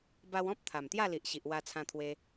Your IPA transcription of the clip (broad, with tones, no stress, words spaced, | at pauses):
ba˧wɔ̃˦p̚ t̪ʰa˨˩mt̪ja˥˧li˨ʔɕi˨ʔ wa˧t͡sʰã˧t̪ʰwe˧